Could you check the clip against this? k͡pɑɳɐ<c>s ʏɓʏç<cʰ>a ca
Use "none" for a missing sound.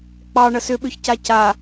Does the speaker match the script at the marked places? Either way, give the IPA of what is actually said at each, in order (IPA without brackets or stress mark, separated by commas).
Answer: none, c